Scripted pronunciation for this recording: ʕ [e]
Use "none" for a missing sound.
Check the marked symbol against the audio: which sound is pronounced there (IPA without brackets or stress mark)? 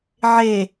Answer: e